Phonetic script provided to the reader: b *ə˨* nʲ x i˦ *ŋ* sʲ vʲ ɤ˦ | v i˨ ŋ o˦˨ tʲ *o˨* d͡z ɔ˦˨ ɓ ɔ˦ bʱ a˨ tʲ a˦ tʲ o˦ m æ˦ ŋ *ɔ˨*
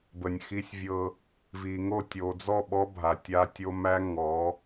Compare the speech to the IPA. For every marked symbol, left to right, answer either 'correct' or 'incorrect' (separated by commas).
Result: correct, incorrect, correct, incorrect